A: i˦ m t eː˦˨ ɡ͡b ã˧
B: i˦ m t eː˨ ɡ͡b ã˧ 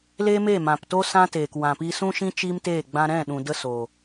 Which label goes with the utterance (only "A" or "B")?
A